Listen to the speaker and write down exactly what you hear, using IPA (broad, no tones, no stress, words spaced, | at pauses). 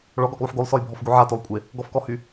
ɭɔɡɔɡlˠuħ ɡolˠsɔjbʱɔfɡu ʕatolˠkʷʼe | ɡɔfkɔhy